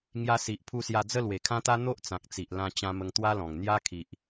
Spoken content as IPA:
ŋ j a˧ s i˨ ʔ pʰ u˧ s j a˧ d͡z ə˥˧ l w e˨˩ kʰ ã˦ t̪ a˦ n̪ o˦ ʔ t͡s ã˨ k̚ t͡s i˨ ʔ l ã˧ t͡ɕ ã˧ m ə˧ ŋ t̪ w a˦ l ɔ̃˨˩ ŋ n̪ j a˦ kʰ i˨ ʔ

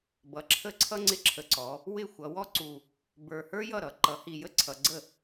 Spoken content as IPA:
b ʌ˩˥ ǁʰ ə˥˩ ǀʰ ʌ˥ ŋ͡ǀ ɪ˧ ǁʰ ə˨˩ ǀ ɔ˩˧ | w ɪ˥˩ xʷ ʌ˩˧ w ɔ˥ ǀ u˨˩ | b ə˞˨˩ h ə˞˥ j ʌ˥˩ ɾ ʌ˩˧ ǃ ʌ˩˧ h i˨˩ j ə˥ ǀʰ ʌ˩˧ ɡ͡ǀ ə˥˩

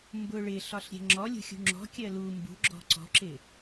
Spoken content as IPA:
m b ʊ ɭ ɪ ɬ ɒ ɬ ɾʲ ɛ̤ ŋ͡ǁ ɔ lʲ ṳ xʲ ṳ ŋ͡ǁ ɔ̤ kʲ ɜ l u m b ṳ ɡ͡ǁ ɔ̤ ǀ ɔ̤ ǁ ɪ

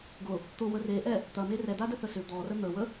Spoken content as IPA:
ɡ ʊ | t̪ ʊ w ə r e ʔ ɛ | t̪ ɐ m e r ɛ d̪ a d ə θ ə s ʏ d̪ ɔ r ə n̪ ə w ə

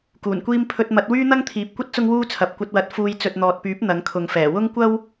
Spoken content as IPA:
k uː˨˩ n kʷ iː˥ m pʰ ɵ˧ t̚ m ɐ˨˥ t̚ w yː˥ n̪ ɐ˥ ŋ t̪ʰ iː˨ p̚ kʷ ɐ˥ t̚ t͡s ʊ˥ ŋ w uː˥ t͡sʰ ɐ˨ p̚ kʷ ɐ˧ t̚ w ɐ˨˥ t̚ f uː˧ j t͡s ɵ˨ t̚ n̪ ɔː˨ t̚ p yː˨˥ p̚ n̪ ɐ˨˥ ŋ kʰ ʊ˨˧ ŋ f ɛː˨˩ w ʊ˥ ŋ kʷ ɐ˥ w

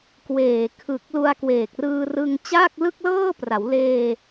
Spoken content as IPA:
k w eː˨˩ kʰ ɯ˨˩ k̚ l u˧ a̯ k w eː˨˩ k̚ r ɯː˧ r ɯ˧ ŋ t͡ɕ aː˥˩ k̚ l ɯ˥˩ k̚ l ɤː˥˩ p r a˩˦ w l eː˧

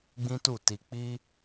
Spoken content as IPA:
ɡ͡b ĩ˦ t u˦˨ t i˧ k͡p i˦

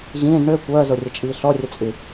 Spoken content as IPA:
ʑ ĩː ɖ ɳ ø kʷ œː z o rʲ ə t͡ʃʼ iː ɬ ɔ rʲ ə t͡sʼ y

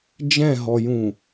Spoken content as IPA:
d͡ʒ ɛ̃ ɦ ɔ j ũ

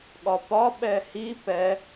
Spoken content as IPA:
ɠ ɒ p ɒ ɓ ɛ h i p ɛ

